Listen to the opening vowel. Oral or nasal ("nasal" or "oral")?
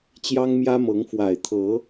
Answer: oral